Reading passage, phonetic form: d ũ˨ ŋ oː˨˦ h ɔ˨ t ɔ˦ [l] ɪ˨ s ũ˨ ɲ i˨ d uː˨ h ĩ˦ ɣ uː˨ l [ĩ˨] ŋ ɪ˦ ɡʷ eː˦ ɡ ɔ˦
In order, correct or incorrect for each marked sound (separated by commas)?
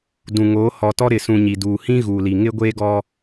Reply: incorrect, incorrect